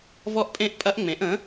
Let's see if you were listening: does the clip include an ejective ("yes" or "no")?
yes